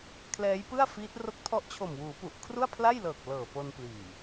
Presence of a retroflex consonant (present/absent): absent